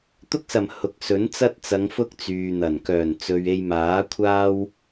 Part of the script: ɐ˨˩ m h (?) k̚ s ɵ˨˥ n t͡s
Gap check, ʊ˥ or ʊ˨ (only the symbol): ʊ˨